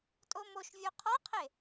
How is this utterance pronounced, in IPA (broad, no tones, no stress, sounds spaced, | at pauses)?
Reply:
tʼ o m o ʃ vʲ u qʰ ɒ qʰ e